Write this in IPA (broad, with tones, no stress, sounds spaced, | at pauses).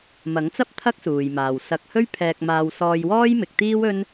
m ɐ˨˥ ŋ t͡s ɐ˥ p̚ t̪ʰ ɐ˥ k̚ s uː˨ j m aː˨ w s ɐ˧ k̚ h ɵ˥ ɥ pʰ ɛː˧ k̚ m aː˧ w s ɔː˧ j w ɔː˥ j m ɪ˨˥ k̚ t̪ iː˥ w ɵ˥ n